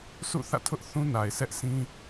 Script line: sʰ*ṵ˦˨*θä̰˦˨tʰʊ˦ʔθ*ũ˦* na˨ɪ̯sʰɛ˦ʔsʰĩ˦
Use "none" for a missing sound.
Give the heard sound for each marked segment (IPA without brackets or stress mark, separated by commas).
ṵ˦˨, ũ˦